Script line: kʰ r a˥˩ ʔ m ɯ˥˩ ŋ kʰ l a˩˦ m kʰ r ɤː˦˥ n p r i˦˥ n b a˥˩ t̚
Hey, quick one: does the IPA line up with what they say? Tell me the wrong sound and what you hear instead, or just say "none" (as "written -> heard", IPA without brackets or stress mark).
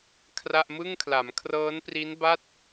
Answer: none